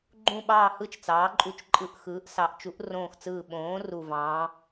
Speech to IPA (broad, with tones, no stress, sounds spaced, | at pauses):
ɡ͡ǃ ũ˦˨ ɓ ɑː˦˨ h ɯ˦˨ t͡ʃ t͡s ɑː˨˥ ǃʼ u˦˨ t͡ʃ ǃʼ ɯ˦˨ ʔ x ɯː˨˥ ʔ s ɑ˨˥ ʔ t͡ʃ u˨˥ ʔ r õː˦˨ x t͡s ɯː˦˨ ɓ õː˨˥ r u˦˨ v ɑ̃ː˨˥